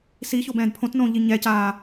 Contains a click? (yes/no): no